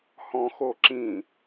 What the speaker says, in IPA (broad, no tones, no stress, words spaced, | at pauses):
hɔ̃xoǁĩ